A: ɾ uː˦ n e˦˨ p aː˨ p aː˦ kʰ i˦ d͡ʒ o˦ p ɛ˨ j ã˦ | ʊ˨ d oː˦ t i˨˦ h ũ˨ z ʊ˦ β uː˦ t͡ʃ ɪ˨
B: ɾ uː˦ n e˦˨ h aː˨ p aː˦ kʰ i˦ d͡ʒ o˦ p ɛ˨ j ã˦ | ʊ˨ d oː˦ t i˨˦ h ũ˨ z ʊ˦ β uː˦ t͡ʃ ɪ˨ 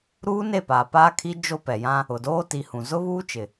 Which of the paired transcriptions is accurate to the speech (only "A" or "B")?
A